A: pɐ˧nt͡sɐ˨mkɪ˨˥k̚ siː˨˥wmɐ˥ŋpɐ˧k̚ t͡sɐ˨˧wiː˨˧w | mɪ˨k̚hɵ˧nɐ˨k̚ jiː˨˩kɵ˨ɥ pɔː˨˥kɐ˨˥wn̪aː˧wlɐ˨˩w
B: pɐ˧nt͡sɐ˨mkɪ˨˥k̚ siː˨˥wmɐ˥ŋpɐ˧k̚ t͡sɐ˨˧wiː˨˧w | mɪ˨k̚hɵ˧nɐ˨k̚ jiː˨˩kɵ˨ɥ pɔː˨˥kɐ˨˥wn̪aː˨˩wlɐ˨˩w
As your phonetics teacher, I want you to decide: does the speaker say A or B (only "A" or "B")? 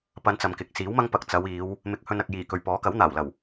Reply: B